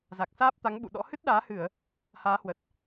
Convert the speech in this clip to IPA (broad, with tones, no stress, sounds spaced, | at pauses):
z a˨˩ k̚ s aː˦˥ p̚ t̪ a˨˦ ŋ ɓ ṵ˧˨ ɗ ɔ̰˧˥ h ɨ˦˥ t̚ ɗ aː˨˦ h ɨ˧˩˨ ə̯ | h aː˨˦ h w ə˨˩ t̚